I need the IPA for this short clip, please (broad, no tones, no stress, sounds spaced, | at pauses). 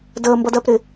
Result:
d əː m b ʌ d ɜ p ɾ ɪ